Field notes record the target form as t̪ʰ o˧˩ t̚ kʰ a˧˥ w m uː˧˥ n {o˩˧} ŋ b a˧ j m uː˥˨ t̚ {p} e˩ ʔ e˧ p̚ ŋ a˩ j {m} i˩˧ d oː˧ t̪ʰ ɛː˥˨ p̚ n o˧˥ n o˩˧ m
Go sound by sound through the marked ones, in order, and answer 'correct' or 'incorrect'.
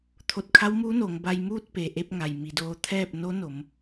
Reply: correct, correct, correct

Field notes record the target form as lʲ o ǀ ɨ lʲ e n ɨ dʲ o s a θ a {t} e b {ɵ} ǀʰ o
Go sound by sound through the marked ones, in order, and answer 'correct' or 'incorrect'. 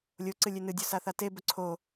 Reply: correct, correct

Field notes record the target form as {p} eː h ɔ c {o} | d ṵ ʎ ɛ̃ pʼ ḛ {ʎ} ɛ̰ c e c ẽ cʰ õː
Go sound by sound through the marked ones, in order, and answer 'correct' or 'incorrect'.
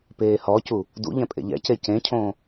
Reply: correct, incorrect, correct

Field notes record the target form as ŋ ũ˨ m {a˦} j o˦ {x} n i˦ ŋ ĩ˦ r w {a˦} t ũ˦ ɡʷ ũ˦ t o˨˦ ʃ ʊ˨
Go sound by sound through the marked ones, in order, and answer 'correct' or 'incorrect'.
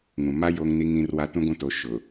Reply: correct, incorrect, correct

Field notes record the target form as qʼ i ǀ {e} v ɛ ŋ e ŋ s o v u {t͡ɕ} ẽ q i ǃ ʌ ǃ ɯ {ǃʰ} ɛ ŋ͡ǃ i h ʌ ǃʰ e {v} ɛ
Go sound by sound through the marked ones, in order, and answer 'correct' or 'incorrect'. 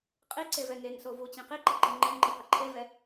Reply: correct, correct, incorrect, correct

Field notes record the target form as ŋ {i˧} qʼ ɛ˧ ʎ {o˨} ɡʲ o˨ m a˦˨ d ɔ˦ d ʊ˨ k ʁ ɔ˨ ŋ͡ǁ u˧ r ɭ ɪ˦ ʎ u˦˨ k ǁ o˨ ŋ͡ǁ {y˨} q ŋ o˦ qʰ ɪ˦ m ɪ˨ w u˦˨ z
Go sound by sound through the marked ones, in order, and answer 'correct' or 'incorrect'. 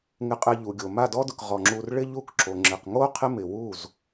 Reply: incorrect, incorrect, incorrect

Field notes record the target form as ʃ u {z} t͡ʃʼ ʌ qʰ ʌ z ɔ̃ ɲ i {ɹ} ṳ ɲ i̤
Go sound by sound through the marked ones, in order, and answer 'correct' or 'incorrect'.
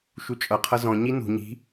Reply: incorrect, incorrect

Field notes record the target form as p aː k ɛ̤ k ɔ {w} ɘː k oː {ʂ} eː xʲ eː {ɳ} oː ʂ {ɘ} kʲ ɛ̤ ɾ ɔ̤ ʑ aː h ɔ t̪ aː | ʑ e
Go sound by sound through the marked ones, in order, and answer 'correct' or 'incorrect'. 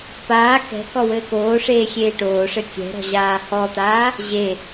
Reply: correct, correct, incorrect, correct

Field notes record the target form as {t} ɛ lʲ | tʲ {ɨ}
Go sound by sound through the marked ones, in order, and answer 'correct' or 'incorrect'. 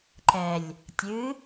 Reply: incorrect, correct

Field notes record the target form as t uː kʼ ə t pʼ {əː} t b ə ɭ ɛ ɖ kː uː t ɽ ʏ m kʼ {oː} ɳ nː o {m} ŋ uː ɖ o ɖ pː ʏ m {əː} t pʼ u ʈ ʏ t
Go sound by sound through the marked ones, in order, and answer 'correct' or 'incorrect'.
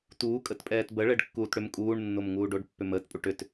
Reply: incorrect, incorrect, correct, correct

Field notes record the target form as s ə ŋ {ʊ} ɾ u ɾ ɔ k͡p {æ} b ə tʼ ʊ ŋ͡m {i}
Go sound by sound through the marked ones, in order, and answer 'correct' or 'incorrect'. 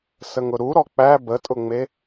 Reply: correct, correct, incorrect

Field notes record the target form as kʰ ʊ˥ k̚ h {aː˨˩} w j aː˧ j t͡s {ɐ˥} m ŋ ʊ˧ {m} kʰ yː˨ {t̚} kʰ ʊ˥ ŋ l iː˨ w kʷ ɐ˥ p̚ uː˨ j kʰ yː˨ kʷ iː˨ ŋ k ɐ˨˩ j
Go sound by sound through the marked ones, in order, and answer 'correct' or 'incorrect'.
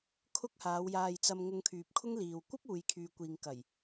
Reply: incorrect, incorrect, incorrect, incorrect

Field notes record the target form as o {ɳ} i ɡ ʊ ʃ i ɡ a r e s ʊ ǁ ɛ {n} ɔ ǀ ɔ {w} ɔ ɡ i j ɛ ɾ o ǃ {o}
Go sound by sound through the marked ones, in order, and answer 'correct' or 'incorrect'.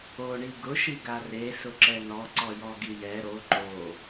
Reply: correct, correct, incorrect, correct

